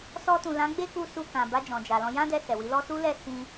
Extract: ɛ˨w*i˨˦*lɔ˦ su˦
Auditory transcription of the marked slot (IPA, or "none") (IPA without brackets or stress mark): i˨˦